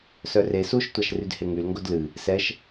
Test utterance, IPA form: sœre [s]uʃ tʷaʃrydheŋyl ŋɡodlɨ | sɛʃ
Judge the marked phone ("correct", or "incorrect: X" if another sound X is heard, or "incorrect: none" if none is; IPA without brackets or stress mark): correct